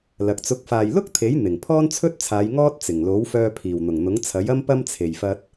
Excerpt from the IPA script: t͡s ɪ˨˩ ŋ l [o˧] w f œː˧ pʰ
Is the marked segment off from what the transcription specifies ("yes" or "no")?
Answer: yes